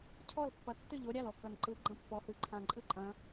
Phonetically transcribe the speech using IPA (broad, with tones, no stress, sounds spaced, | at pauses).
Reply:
cʰ ɔ˥˩ l pː ɐ˨˦ tː ɨ˥˩ ʎ o˨˦ ɾʲ a˥˩ l ɔ˥˩ k ɐ˨˩ n ǃ ɯ˨˦ ɡ͡ǃ ɐ̃˥˩ pː ɔ˨˦ h ɨ˨˩ ǃʰ ã˨˩ ǃʼ ɨ˥˩ ǃʼ ɐ̃˨˦